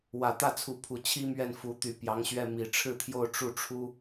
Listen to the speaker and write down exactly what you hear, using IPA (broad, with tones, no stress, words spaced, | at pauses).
wä˨˩t̪ä˥˩t͡sʰu˧˥pʰu˨˩ t͡ɕʰi˥mɥɛ˥˩n fu˧˥ t̪y˧˥pjɑ˧˥ŋɕɥɛ˥˩ mi˨˩ʈ͡ʂʰɻ̩˥˧t̪ʰjo˥˧ʊ̯ ʈ͡ʂu˥˩ʈ͡ʂʰu˥